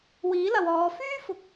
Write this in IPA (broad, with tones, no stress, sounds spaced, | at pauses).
w iː˨˥ l ɐ˨ w ɔː˨˧ f yː˥ f ʊ˨ k̚